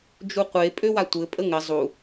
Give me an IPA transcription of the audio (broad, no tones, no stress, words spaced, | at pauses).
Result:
d͡ʒuqʷe pʼøwatʷɘ pʼəŋɘ zˤu